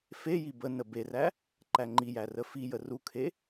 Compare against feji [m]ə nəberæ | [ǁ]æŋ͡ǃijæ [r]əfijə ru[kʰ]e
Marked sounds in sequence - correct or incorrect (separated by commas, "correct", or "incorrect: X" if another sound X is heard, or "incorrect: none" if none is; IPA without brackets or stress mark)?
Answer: incorrect: b, incorrect: ǃ, correct, correct